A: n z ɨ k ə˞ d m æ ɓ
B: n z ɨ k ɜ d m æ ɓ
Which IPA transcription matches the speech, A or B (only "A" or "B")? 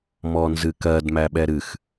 B